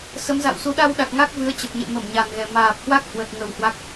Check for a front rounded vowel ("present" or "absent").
absent